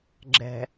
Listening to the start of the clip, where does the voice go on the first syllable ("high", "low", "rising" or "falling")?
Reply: low